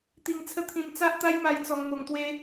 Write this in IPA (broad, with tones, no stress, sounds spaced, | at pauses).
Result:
t̪ i˧ ŋ t͡sʰ ə˦ t̪ʰ ĩ˧ m t͡s a˦ ʔ t̪ a˦ j m a˧ j t͡s ɔ˧ ŋ m o˧ ŋ t̪ w e˦